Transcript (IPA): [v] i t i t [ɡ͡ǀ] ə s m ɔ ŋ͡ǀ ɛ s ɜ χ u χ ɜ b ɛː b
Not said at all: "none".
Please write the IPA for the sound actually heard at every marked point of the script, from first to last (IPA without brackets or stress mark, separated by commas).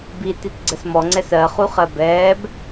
b, ɡ͡ǀ